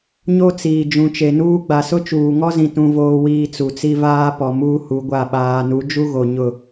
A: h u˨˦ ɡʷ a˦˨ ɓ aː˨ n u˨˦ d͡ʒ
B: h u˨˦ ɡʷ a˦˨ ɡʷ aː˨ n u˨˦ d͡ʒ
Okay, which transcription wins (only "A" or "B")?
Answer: A